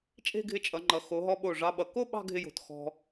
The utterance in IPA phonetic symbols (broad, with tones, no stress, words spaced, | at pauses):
t͡ʃʼe̤˥˧ɡʱɪ˧t͡ʃʼʌ˩˧ŋ͡ǃʌ˩˧ xo˩˧ɦɔ˧ɓo˧˩ ʐɑ˧ɓʌ˩˧ ko˥˧ ɓɑ̤˥˧ɡʱɪ˧jo̤˩˧t xɔ̤˧